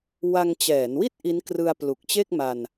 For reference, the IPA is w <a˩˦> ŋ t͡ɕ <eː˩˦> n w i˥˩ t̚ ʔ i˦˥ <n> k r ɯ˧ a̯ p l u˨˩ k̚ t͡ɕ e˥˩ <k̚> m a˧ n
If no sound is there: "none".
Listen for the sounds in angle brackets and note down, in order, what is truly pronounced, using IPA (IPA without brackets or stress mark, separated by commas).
a˧, ɛː˩˦, n, k̚